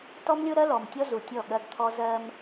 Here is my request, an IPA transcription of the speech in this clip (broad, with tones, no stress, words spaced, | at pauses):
tɔ˦mlʲo˦ɾɜ˦ lɔ˨mtʲɔ˦ zu˨tʲɔ˦˨ ɠɜ˦ɡt̪ʰɔ˦ zɜ˦m